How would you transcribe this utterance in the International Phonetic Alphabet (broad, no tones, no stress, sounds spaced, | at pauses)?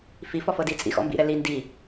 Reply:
f i f ɔ f ɤ d i t͡sʼ ḭ x ɔ̰ m b ḭ ɾ ɛ l i n d i